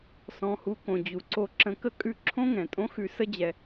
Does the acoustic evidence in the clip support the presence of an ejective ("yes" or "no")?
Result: yes